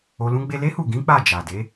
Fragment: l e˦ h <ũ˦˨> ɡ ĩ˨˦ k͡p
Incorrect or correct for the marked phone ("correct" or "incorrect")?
incorrect